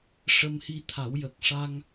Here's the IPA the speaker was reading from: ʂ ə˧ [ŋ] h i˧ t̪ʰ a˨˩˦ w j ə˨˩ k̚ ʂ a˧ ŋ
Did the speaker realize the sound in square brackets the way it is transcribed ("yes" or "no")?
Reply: no